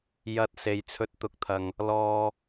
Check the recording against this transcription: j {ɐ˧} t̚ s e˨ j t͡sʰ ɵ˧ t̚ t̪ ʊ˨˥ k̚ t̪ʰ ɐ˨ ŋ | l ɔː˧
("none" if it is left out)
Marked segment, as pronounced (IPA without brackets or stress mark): ɐ˧